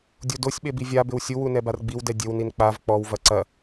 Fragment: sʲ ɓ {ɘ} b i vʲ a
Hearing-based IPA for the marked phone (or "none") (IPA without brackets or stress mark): e